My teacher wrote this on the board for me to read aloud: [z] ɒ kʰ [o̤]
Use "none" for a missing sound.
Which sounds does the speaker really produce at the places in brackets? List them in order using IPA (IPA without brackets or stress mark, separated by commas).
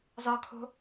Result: z, o̤